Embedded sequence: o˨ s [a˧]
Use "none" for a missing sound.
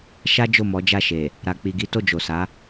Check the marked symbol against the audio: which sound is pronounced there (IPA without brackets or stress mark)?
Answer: a˨˦